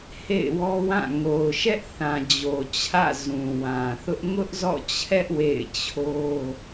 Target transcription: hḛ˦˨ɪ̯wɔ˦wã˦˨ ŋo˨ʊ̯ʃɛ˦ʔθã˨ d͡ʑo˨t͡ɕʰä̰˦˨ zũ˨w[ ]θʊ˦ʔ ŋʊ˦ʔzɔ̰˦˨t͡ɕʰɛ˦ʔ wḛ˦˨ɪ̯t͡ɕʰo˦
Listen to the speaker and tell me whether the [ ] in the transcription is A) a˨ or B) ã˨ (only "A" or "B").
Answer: B